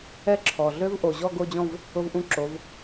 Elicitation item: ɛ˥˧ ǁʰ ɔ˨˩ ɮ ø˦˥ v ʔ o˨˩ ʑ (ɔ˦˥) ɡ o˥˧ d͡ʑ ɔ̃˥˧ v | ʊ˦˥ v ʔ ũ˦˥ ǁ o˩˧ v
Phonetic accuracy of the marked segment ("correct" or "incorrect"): incorrect